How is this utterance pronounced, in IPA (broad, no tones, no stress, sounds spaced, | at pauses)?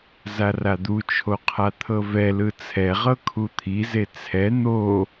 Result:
z a r a d̪ u t͡ʃʰ o qʰ a t̪ʰ ɤ v ɛ l ɯ t͡sʰ ɛ ʁ ɤ kʰ u t̪ʰ i z e t͡sʰ ɛ n̪ o